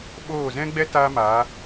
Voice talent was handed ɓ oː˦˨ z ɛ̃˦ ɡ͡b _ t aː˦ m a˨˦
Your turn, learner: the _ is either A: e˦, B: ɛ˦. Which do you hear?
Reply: B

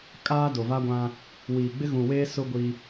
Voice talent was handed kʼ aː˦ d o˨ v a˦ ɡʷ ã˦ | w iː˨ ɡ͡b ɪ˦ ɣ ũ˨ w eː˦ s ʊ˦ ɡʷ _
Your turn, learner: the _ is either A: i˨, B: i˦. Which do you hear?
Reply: B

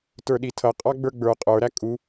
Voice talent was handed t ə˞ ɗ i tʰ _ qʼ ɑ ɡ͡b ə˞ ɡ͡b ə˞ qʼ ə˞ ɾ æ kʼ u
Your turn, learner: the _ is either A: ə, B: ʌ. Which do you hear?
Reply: B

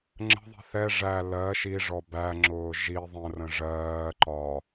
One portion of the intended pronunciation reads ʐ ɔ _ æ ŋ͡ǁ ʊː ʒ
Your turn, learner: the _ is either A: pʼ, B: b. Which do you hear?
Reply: B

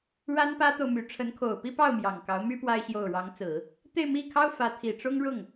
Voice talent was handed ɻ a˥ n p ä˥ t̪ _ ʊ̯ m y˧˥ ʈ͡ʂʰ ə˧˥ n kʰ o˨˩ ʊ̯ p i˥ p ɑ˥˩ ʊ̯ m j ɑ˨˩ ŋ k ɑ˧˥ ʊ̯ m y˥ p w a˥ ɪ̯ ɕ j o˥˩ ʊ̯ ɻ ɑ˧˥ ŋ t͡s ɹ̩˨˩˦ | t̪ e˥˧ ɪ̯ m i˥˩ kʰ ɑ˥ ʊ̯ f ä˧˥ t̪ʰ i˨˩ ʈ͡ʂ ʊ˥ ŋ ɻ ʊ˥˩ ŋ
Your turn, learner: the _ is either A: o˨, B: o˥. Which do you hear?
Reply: A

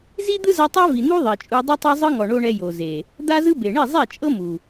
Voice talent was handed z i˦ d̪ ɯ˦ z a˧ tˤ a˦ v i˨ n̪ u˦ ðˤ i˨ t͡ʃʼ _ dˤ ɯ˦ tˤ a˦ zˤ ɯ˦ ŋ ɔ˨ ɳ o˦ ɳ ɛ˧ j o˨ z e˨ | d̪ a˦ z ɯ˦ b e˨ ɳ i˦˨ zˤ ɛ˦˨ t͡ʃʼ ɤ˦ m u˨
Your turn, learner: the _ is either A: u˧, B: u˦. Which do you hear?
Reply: A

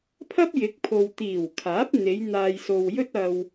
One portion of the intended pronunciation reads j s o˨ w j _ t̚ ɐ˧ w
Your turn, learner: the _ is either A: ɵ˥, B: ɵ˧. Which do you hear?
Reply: A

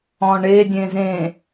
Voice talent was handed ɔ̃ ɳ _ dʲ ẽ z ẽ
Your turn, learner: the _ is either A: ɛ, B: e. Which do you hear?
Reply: B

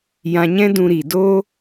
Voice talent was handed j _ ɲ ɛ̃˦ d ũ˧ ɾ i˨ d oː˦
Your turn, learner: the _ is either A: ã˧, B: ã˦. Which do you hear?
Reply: A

